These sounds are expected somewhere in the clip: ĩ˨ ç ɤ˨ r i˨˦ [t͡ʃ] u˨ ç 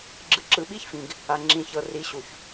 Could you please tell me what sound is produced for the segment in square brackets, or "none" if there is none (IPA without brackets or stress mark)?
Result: ɕ